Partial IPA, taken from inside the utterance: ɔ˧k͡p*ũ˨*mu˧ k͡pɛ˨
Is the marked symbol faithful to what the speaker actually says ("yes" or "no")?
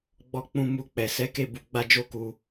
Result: no